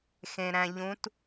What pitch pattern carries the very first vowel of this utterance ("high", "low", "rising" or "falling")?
low